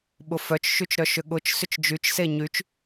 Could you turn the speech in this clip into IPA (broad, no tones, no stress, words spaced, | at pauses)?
ɓʊfœt͡ʃ ʃyt͡ʃɾœʃʏɠʊt͡ʃ sʏt͡ʃd͡ʒyt͡ʃ seɲyt͡ʃ